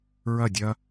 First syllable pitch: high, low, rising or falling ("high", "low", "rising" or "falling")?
falling